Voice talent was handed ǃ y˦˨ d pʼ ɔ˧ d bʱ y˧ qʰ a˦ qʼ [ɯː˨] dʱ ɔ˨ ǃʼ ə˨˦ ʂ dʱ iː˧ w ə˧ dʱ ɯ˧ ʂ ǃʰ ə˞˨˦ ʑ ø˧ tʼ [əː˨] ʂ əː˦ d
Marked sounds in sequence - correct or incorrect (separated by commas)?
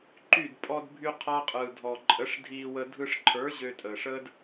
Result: correct, correct